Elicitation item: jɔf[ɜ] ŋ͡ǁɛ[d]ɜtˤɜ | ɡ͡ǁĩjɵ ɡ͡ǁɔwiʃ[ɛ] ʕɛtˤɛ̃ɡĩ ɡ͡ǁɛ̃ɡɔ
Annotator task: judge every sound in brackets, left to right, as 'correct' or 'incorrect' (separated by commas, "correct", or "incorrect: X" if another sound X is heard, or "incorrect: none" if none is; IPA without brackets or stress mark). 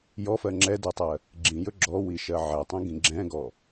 correct, correct, incorrect: ɜ